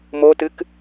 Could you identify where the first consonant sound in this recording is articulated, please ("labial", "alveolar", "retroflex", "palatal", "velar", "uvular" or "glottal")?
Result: labial